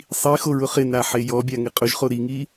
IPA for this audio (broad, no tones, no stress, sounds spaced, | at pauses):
sˤ i x o ɹ ʊ χ ɪ n a ħ e j ɔ bʲ a ŋ ɪ qʼ ʊ ʒ χ o ɾ i ŋ i